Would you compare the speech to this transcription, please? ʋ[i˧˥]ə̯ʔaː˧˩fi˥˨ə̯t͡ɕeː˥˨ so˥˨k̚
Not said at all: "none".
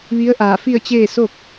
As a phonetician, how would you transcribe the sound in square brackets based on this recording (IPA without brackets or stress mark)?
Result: i˧˥